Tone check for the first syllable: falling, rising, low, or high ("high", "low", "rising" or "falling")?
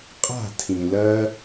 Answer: falling